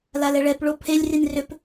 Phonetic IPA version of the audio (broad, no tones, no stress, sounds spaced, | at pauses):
l a l ɛ ɭ ɛ p ɭ o pʰ e lʲ r i n r ʏ p